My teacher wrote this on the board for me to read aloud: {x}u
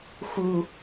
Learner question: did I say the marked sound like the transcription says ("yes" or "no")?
yes